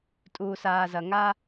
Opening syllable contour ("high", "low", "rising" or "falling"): low